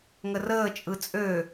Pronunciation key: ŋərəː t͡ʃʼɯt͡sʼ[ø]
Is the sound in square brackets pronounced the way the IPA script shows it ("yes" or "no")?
yes